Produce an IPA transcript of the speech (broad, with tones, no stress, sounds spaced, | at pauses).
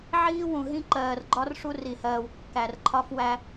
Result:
ʕ iː˦ w ũ˨ ɦ ĩ˦ ǃ ɜː˨ r ɡ͡ǃ ɒ˦ r ʂ u˦ r i˨ h ɜː˨ w kː æ˨ r ǃʰ ɒ˦ f w æ˦